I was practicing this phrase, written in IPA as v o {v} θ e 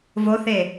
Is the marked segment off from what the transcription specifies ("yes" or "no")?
yes